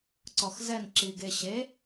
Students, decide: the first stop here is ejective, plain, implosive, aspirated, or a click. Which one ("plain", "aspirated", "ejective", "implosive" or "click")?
click